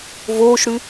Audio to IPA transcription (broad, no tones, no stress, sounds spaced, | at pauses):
v oː ʃ ɽ ʉ